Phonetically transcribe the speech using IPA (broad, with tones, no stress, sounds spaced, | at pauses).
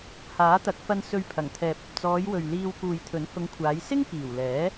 h aː˨˥ t̪ ɐ˨˥ k̚ f ɐ˧ n s ɵ˧ ɥ pʰ ɐ˨˩ ŋ t̪ʰ ɛː˨ p̚ ɐ˨ p̚ t͡s ɔː˨˧ j w ɵ˨ ɥ l iː˧ w k uː˨ j t̪ʰ ɵ˨˥ n h ʊ˨˧ ŋ kʷʰ aː˨˧ j s ɪ˥ ŋ k iː˨˩ w l ɛː˨˥